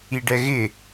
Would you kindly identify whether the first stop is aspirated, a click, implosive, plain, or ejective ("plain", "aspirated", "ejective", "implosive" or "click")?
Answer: plain